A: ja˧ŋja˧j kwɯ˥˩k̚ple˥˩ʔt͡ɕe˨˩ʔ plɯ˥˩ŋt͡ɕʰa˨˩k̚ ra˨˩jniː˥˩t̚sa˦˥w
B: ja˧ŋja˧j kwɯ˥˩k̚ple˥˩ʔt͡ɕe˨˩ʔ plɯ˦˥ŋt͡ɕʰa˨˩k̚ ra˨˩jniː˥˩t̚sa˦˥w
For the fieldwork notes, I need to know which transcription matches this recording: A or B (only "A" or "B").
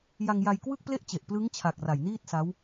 B